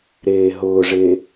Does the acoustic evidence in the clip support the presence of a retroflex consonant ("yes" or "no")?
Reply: yes